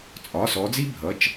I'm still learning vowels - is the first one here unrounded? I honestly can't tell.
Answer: no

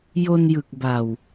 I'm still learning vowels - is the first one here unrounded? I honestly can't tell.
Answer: no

